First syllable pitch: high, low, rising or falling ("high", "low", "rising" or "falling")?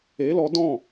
rising